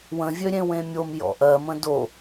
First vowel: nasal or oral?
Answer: nasal